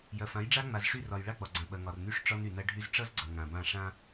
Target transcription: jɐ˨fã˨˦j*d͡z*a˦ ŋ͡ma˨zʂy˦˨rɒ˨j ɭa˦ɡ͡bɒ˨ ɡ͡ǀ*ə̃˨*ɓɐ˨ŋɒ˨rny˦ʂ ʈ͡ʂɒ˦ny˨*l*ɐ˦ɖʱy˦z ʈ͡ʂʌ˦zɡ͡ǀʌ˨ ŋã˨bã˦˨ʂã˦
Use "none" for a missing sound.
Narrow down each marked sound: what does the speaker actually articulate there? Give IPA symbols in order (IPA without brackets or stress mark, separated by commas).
ɖ͡ʐ, ɐ̃˨, n